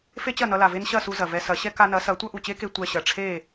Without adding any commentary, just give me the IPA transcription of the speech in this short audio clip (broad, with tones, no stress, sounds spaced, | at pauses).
f e˥ t͡ɕ ɐ˥˩ n ʌ˧ l a˩ v e˥ n ɕ ɐ˥˩ s u˧ z ɐ˩ v ɛ˧ s ɐ˩˥ ɕ ɛ˥ k a˧ n ɐ˩˥ s ɐ˩˥ tʷ ʌ˥ ʔ u˩ t͡ɕ e˥ k e˧ tʷ ɛ˧ ɕ ɐ˩ ʈ͡ʂʰ e˥˩